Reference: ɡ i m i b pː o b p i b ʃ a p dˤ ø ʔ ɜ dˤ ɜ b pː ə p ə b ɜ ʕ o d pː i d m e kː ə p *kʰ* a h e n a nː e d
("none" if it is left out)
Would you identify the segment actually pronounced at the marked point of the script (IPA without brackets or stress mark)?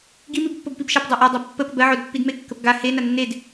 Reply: ɡ